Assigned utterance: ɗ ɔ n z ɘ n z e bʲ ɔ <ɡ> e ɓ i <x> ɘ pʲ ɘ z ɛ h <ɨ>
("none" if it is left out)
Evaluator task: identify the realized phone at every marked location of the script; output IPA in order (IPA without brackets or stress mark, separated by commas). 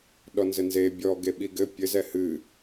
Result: ɡ, ɡ, ɨ